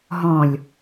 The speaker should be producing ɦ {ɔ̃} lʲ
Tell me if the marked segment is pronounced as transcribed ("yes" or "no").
yes